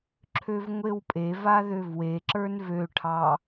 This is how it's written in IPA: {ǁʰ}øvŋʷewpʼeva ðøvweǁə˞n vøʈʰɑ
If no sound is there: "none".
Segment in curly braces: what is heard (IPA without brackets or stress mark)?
ǁʰ